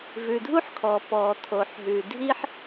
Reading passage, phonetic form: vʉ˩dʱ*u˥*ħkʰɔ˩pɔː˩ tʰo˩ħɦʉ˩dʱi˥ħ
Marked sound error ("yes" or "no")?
no